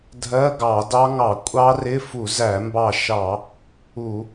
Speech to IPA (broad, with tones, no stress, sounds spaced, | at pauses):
dʱ ɜ˧˥˧ ɡ ɑ˧˩˧ d ɑ˦˥ ŋ ɑ˧˩˧ kʷʼ ɑ˦˥ r ɪ˧˥˧ f u˧˩˧ z æ˧˩˧ m b ɑ˧˩ ʃ ɑ˧˩˧ | u˧˩˧